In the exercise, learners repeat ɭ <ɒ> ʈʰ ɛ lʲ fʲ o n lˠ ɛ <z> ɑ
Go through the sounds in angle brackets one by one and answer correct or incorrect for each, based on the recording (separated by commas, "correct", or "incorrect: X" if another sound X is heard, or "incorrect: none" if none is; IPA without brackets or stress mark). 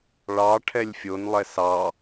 incorrect: ɑ, incorrect: s